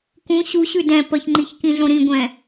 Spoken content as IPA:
k ũ ɕ u ɕ ʉ d ɛ̃ p ə ç ŋ͡ǃ i ç k ĩ ɮ õ ɾ ĩ ɡʷ ɛ̃

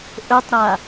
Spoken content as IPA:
ʔ ɵ tˤ ɾ a

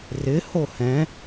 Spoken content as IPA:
r ɪ h o h ɛ̃

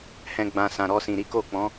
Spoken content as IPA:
h ɛ̃˦ ɡ͡b ã˧ s ã˨ ɾ ɔ˧ s ĩ˨ ɾ i˨˦ k o˦˨ k͡p ɔ̃˨˦

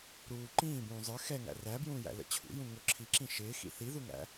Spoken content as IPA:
ɾ uː ǃ ĩː b ũː zˤ ə˞ x ɛ ŋ æ̰ r æ b j ũː j æ̰ l ə̰ t͡ɕʰ ṵ j ũ ŋ ʊ ǁʰ i ǁ ĩ ʃ ɪː x ḭ θ i ð u ŋ æ̰

